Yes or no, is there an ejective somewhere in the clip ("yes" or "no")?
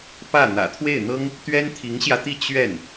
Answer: no